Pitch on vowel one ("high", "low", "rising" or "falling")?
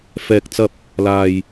low